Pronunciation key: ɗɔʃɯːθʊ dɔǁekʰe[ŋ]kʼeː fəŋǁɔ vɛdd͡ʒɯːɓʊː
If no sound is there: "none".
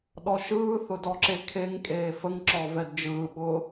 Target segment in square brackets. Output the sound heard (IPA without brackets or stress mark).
ŋ